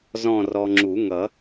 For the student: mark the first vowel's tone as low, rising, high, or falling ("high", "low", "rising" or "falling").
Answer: falling